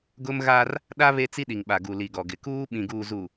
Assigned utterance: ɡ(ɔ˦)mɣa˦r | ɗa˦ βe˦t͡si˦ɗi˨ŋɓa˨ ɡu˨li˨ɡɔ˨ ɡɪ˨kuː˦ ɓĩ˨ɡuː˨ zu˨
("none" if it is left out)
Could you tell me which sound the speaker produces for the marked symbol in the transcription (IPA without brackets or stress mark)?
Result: ʊ˦